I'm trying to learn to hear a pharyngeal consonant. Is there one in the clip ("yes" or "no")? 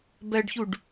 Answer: no